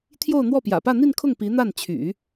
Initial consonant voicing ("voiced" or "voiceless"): voiceless